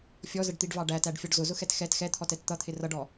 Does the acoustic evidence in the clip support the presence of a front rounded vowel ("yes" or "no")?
no